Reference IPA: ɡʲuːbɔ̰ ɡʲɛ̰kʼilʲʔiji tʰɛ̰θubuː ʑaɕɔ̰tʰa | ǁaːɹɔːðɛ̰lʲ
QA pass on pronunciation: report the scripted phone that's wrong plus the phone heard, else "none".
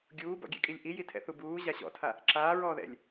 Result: none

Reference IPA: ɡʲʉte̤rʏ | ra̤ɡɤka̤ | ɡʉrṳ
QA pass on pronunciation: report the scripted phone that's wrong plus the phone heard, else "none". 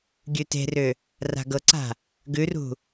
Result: k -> ǀ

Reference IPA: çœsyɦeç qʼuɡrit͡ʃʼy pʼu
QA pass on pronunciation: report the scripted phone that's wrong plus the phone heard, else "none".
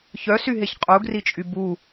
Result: pʼ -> b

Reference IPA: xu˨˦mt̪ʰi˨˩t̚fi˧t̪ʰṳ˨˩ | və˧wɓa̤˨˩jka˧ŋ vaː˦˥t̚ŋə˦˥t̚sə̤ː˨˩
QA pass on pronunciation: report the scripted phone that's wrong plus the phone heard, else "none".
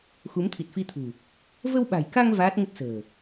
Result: none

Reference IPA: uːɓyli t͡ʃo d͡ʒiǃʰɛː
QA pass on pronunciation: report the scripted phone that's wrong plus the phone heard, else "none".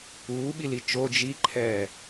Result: y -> i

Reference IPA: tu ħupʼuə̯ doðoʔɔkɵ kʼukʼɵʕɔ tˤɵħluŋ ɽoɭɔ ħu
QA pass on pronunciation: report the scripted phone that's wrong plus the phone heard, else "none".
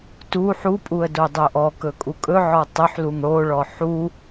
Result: ð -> dˤ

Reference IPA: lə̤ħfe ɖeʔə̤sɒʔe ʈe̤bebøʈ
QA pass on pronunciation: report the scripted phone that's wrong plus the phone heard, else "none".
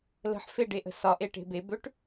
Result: none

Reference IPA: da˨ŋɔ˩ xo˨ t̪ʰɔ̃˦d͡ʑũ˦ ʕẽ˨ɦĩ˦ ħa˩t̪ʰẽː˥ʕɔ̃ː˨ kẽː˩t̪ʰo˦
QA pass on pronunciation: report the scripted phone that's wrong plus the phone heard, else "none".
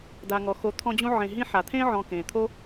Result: none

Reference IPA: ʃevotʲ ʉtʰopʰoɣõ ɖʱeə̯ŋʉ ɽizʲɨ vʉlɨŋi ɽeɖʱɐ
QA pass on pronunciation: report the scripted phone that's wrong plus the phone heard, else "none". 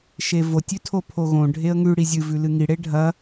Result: none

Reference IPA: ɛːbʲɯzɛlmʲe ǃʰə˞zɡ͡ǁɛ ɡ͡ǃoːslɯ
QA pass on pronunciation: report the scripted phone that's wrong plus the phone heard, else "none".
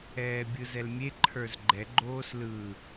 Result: ɡ͡ǁ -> ɡ͡ǃ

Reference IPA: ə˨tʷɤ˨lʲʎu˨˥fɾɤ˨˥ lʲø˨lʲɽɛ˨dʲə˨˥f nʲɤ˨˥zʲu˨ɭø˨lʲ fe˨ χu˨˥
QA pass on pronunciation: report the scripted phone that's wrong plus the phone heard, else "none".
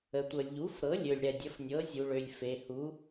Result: χ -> h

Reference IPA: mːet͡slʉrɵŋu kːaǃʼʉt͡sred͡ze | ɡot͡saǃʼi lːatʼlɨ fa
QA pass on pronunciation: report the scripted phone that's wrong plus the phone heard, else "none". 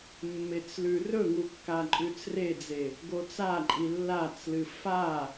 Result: tʼ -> t͡s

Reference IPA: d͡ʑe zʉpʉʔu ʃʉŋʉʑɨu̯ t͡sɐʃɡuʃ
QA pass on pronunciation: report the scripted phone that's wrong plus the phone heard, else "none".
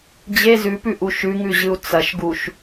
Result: none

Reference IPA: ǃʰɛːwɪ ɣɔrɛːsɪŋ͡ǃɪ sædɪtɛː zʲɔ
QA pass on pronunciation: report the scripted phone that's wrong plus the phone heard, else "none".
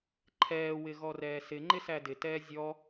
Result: none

